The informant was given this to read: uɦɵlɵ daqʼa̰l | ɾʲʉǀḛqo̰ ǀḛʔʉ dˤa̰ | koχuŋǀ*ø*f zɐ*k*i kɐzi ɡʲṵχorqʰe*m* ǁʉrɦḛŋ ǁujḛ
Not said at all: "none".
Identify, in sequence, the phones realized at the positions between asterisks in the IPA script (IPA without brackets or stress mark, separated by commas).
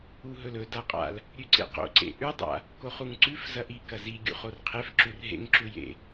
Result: ʉ, ʔ, f